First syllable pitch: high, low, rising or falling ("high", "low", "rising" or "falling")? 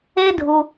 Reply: high